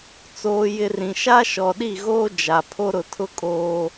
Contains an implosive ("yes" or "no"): yes